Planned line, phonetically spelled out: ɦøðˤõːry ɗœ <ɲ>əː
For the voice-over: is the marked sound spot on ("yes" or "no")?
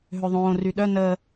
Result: no